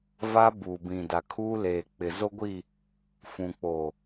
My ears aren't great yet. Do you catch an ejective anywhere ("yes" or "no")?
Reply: no